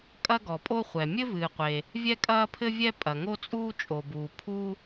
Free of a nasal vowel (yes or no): yes